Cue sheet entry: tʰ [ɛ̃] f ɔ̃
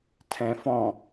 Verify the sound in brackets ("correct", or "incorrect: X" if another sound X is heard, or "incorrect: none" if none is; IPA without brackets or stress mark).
correct